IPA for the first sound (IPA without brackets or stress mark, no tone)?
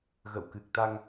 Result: ɣ